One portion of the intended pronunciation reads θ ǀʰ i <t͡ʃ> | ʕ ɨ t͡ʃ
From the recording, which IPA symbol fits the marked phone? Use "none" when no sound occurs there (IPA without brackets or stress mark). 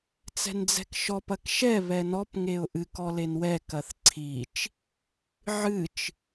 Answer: t͡ʃ